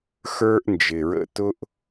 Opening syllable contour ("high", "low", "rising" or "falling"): high